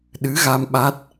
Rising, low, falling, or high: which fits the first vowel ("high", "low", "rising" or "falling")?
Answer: rising